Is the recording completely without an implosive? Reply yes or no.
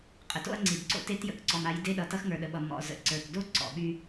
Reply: no